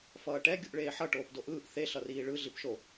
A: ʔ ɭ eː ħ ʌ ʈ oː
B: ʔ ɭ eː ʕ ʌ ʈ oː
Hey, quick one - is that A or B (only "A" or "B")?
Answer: A